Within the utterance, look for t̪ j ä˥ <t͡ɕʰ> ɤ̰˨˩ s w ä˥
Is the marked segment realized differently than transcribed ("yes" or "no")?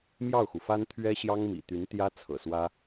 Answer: yes